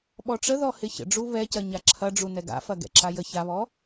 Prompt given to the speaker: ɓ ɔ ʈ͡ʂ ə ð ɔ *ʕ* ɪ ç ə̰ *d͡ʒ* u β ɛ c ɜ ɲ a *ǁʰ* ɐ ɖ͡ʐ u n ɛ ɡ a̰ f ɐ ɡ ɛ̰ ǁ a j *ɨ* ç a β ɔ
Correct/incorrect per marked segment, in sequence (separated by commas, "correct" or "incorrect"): incorrect, incorrect, correct, incorrect